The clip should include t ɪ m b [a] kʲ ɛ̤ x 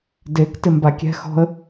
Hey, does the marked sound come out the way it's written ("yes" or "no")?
yes